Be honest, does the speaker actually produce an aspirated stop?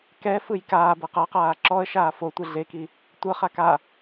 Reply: no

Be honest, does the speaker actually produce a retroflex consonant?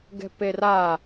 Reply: no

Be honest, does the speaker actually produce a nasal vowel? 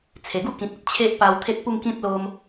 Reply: yes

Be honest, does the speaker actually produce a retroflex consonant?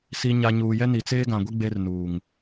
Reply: no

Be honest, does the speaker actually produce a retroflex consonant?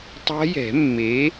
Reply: no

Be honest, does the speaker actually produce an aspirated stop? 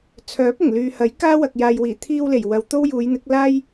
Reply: yes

